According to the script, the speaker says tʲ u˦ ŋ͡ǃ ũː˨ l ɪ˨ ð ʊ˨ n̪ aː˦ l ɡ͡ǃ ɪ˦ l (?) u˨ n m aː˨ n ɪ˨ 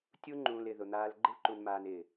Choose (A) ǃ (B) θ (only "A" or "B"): A